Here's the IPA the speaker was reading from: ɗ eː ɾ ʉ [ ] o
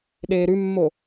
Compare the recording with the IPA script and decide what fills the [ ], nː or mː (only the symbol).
mː